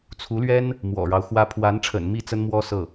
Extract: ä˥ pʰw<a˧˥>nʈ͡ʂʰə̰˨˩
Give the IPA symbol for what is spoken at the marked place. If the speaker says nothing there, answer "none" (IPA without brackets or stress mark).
a˧˥